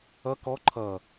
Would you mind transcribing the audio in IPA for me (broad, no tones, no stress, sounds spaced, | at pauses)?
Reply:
ʌ k ɔ ǃʰ ʌ